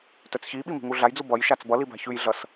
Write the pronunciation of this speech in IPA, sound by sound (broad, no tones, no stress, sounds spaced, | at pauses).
t œ t͡s ç i ɓ i m i̤ ŋ u ɮ a j d͡z u b ʌ j ʃ a t͡s b ʌ l i b a̤ ç ʉ j ɮ ʌ s